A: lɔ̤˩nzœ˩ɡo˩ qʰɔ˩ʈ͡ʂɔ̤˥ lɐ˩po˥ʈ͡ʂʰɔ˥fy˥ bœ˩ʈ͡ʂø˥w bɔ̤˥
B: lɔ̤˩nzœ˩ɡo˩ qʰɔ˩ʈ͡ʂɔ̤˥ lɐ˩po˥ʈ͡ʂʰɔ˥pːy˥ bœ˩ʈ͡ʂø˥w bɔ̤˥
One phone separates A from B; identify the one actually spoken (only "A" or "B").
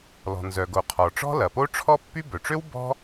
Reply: B